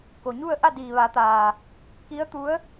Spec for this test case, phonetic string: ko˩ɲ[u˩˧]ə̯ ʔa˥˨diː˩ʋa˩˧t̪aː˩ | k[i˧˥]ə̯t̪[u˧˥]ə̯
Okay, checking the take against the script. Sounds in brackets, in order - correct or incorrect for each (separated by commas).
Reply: incorrect, correct, correct